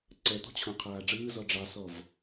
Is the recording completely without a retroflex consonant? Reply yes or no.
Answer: no